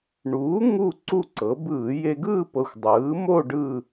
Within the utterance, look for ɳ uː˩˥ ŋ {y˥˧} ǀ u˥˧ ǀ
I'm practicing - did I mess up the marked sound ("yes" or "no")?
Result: yes